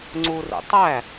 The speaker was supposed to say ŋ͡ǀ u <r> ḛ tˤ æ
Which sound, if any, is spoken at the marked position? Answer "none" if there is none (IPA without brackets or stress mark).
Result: r